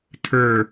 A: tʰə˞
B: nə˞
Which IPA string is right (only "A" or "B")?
A